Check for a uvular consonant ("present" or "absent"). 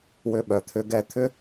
absent